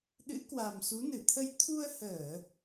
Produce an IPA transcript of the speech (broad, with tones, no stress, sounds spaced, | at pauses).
ɗ ɨ̰˧˥ k w a˨˩ m s u˨˦ n ɨ˧˩ t̪ʰ ə˧ j t̪ʰ u˧ ə̯ h əː˧˩˨